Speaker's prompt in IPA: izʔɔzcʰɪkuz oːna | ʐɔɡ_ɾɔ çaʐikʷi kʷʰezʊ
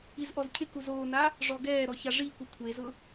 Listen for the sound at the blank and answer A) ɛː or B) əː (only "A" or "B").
A